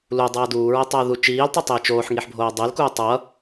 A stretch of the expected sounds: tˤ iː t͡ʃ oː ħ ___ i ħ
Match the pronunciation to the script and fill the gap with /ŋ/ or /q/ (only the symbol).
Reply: ŋ